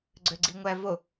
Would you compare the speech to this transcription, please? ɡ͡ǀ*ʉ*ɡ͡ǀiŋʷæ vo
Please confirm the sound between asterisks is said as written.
no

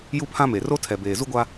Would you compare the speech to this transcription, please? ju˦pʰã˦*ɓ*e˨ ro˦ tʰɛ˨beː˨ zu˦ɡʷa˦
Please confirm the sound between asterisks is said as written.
no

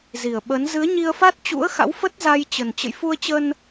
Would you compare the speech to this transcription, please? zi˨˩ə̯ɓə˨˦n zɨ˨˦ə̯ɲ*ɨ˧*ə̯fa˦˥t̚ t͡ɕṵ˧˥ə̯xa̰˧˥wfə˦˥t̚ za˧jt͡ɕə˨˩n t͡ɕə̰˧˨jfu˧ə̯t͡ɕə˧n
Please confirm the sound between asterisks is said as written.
no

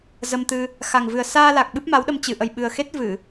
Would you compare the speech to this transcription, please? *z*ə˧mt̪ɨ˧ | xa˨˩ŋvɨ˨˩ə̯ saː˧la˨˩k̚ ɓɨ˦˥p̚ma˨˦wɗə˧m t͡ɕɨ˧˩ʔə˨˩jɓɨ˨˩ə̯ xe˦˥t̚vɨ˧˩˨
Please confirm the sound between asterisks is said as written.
yes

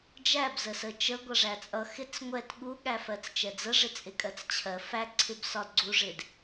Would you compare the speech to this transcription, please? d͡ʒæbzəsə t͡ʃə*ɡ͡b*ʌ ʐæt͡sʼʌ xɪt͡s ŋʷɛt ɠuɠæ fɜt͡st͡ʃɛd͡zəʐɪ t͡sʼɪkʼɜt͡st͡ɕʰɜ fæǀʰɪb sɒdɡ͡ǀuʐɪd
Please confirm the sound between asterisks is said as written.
no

